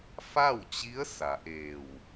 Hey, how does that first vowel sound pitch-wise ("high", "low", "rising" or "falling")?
falling